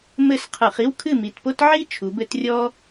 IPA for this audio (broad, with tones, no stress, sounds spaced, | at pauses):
m ɘ˥˨ s qʰ ɨ˧˩˧ χ i˥ w kʰ ɨ˥˨ m i˨˩ t p o˥ t ʕ i˥ t͡ʃʰ u˨˦ b ɘ˥ t rʲ ɔ˥